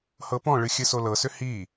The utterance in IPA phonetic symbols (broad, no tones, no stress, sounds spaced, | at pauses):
h ɤ p ɔ̃ ɭ ɨ xʲ ɨ s o l ɤ s ʏ h i